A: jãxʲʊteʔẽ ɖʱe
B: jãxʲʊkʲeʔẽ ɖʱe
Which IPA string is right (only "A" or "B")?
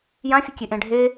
B